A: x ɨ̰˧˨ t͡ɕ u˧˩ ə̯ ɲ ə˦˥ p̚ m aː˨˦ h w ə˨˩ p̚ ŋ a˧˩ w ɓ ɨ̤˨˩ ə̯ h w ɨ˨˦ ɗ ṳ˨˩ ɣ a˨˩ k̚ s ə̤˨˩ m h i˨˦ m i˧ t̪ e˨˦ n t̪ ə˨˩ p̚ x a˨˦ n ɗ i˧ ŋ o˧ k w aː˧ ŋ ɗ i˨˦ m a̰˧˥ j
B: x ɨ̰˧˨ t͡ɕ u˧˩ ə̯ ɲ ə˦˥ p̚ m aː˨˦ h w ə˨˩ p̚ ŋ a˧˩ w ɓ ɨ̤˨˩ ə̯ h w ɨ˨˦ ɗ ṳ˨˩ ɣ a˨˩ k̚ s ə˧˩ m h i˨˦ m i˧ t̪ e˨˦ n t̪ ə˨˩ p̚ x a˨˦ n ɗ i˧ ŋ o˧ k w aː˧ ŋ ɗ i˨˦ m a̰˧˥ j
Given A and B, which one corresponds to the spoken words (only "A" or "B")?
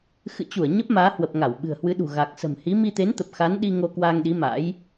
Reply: A